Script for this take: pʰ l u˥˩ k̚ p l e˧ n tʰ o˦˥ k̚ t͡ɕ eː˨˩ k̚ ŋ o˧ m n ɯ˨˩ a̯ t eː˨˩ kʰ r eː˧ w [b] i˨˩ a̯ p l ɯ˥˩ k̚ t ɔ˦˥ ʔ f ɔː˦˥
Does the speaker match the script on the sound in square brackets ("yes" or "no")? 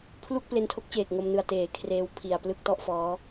no